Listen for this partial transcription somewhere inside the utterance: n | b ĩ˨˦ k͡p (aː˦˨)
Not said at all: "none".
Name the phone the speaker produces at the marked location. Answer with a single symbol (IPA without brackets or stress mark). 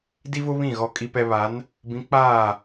aː˦˨